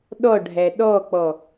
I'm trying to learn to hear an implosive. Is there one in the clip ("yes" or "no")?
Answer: yes